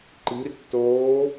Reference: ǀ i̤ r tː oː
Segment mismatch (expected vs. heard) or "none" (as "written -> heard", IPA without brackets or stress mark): ǀ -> ǃ